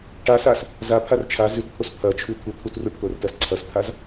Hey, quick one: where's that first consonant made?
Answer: retroflex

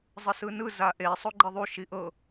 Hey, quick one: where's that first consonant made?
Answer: tongue tip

